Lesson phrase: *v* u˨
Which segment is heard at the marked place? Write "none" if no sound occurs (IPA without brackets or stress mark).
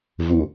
v